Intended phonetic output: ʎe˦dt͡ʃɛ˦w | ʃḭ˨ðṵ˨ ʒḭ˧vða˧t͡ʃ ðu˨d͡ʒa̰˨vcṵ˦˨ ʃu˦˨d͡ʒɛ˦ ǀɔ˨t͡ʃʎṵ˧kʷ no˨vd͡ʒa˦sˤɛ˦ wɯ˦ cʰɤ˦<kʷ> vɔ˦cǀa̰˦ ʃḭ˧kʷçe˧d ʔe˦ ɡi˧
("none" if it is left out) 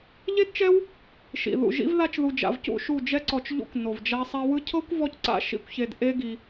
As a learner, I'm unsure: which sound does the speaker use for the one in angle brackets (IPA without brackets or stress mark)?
kʷ